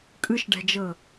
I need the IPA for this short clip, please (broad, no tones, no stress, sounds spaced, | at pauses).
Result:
kʼ ɯ ʃ ɖ ɛ̤ d͡ʒ ɤ